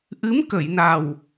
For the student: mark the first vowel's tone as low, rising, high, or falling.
rising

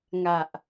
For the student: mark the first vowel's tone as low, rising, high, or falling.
low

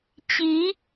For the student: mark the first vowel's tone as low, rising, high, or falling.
rising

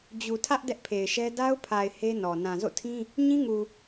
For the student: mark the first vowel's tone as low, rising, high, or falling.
low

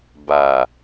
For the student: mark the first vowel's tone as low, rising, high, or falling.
low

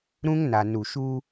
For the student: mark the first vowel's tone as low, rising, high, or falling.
high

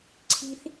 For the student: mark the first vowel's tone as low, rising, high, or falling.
high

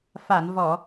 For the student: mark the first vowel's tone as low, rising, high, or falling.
low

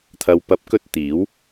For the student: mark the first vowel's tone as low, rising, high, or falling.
low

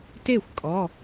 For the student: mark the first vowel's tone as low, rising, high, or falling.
falling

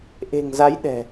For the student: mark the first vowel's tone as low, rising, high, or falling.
low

